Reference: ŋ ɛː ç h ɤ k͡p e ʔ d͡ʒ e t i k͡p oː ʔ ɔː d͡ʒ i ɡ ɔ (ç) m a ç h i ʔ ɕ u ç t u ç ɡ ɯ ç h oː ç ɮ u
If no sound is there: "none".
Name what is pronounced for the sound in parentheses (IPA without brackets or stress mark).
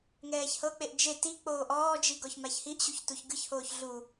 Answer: ç